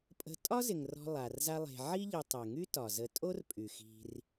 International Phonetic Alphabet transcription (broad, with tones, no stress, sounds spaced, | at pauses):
pʼ ə̤˨ tʼ ɒ˥ z ɪ˩ ŋ r ɔ̤˨ lˠ a˩ r z a˦ lˠ e̤˨ ʕ i˦ ʎ ɪ˨ tˤ e˩ ŋ y˦ t ɒ˩ z ə˨ tʼ o˥ r pʼ y˩ x i̤˨ r